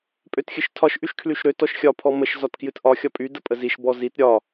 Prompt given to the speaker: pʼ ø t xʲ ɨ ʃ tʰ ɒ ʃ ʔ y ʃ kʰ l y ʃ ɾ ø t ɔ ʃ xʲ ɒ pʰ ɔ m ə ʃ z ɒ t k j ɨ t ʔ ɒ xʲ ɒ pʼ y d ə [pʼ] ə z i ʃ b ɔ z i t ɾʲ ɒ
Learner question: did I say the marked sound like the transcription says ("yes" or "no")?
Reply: yes